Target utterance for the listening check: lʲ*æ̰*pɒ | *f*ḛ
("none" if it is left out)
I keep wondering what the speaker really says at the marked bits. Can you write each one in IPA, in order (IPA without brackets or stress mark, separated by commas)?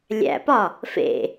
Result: æ̰, f